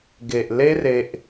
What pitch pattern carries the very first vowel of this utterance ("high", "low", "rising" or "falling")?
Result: low